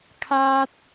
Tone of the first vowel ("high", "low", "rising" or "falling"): high